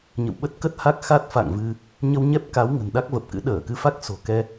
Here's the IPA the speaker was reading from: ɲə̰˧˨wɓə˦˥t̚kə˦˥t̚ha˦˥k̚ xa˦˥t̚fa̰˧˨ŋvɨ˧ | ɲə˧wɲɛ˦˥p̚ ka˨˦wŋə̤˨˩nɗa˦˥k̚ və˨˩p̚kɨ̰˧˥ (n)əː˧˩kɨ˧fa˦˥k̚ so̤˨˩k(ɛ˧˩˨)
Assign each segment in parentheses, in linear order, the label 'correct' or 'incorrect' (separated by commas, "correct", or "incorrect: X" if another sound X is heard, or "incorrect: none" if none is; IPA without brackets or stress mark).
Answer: incorrect: ɗ, incorrect: ɛ˧